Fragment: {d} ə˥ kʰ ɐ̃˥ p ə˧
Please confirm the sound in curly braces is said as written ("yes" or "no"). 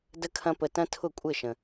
yes